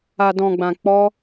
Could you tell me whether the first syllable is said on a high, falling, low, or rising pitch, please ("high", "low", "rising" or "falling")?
low